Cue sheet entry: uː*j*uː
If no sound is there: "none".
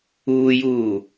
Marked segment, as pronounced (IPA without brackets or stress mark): j